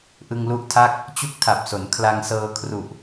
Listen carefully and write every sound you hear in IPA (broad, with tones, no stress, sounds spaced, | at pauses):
ʔ ɯ˧ ŋ l u˦˥ ʔ tʰ a˥˩ k̚ | t͡ɕ u˦˥ k̚ tʰ a˨˩ p̚ s o˩˦ n kʰ l a˧ ŋ s ɤː˧ kʰ r u˨˩ ʔ